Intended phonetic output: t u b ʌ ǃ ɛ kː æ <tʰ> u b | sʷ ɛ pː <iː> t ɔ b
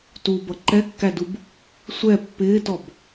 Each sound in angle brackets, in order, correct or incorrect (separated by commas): incorrect, incorrect